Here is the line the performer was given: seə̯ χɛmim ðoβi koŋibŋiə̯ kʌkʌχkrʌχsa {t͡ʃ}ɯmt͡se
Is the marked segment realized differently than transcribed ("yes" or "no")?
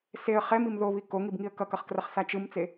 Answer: no